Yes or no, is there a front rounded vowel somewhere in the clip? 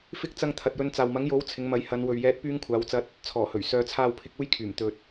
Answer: yes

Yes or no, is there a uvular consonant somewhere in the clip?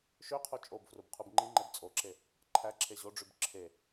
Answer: yes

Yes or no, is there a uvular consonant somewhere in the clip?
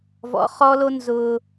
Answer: yes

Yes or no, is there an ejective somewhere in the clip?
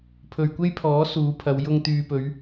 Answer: no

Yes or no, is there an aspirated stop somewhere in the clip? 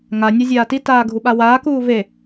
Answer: no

